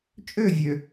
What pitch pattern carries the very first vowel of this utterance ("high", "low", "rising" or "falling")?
falling